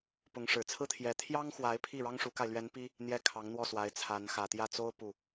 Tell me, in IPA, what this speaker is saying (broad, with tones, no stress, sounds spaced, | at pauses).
p ʊ˧˥ ŋ ʂ ɻ̩˨˩ t͡sʰ ɹ̩˥ t̪ʰ j ɛ˧˥ t̪ʰ j ɑ˥ ŋ x w a˧˥ ɪ̯ pʰ i˥˩ ɻ ɑ˥ ŋ ʂ u˧˥ k a˧ ɪ̯ l ɥ ɛ˧˥ n p i˥ | n̪ j ɛ˥˩ kʰ ɑ˧˥ ŋ n̪ w ɔ˥˩ s w a˥ ɪ̯ t͡sʰ a˧˥ n x ä˨˩ t̪ j ä˥˩ t͡s o˥ ʊ̯ p u˥˩